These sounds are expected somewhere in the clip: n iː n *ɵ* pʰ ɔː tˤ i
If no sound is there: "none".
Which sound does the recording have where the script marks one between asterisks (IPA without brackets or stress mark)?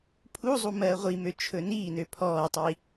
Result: ø